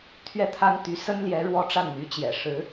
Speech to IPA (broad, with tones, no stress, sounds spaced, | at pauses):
t̪ʰ ɥ ɛ˥˩ t̪ʰ a˥ n t̪ y˧˥ s ə˥ n l j ɛ˧˥ ɻ w ɔ˥ ʈ͡ʂ a˥˩ n n̪ y˧˥ t͡ɕ j ɛ̰˨˩ ʂ ɻ̩˧˥